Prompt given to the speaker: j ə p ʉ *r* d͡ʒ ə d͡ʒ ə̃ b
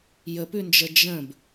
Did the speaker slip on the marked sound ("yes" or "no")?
yes